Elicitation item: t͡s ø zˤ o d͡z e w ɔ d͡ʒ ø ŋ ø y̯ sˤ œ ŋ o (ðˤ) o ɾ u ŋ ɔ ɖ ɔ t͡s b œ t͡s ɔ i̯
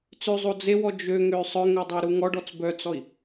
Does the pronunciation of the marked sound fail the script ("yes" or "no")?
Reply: yes